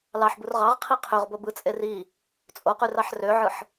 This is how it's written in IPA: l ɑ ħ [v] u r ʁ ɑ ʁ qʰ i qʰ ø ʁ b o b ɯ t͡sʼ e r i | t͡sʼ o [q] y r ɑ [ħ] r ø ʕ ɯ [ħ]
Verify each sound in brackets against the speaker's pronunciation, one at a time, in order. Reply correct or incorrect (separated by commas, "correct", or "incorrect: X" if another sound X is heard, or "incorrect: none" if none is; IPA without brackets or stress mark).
incorrect: b, correct, correct, correct